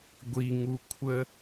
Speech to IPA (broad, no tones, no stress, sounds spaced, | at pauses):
ɡʷ i ŋ u kʷʰ ə